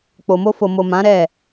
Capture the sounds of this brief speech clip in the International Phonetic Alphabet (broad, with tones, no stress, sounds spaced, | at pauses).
k͡p o˨ m o˧ f o˨ m o˨ m ã˨˦ ɾ ɛ˦˨